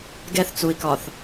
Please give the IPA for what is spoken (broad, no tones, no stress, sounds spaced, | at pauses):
ɡ ɛ θ t͡s u i̯ k ɒ θ